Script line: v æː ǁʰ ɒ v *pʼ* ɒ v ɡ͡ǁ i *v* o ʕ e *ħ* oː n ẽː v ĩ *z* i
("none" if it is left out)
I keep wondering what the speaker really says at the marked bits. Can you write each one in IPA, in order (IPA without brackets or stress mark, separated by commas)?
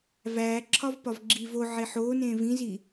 p, v, ħ, z